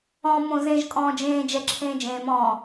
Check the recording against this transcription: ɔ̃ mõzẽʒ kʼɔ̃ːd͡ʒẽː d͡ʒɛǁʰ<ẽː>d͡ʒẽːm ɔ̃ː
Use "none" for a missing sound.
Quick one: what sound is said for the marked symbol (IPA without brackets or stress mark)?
ẽː